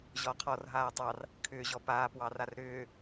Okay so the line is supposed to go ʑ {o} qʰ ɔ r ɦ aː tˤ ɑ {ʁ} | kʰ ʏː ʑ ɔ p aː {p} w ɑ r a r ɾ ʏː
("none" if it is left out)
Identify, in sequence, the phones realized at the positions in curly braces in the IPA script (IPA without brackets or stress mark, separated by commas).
ɔ, r, p